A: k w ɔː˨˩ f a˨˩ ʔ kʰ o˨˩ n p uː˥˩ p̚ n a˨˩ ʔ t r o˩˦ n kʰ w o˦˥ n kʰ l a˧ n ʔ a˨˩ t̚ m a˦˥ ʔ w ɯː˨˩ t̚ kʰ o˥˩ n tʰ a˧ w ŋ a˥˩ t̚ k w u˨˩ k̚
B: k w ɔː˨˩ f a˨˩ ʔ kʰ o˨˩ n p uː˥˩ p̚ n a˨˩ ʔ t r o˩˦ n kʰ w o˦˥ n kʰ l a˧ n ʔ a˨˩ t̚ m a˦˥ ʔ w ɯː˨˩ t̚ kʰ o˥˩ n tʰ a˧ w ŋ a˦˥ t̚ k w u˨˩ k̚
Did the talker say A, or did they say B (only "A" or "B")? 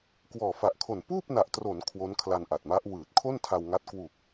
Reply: B